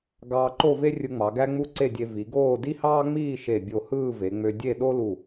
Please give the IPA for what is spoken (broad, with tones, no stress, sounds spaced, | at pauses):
ɡ ɑː˧ ǃ o˥˧ v e˥ rʲ ɯ˧ ŋ͡m ɑ˩˧ ɡ æ˥ ŋ͡m u˥˧ ǀ e˥˧ dʲ e˧ v i˩˧ ɡ oː˥˧ d i˥ h ɑː˥ ŋ͡m iː˥˧ ʃ e˧˩ bʲ o˧˩ h ɯː˥˧ v e˩˧ ŋ͡m ø˧ dʲ e˥˧ ɗ o˥ l u˧˩